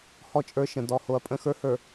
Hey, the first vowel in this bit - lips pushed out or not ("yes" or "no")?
yes